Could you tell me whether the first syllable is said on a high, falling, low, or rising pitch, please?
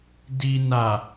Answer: low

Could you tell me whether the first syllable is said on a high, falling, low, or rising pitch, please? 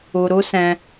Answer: low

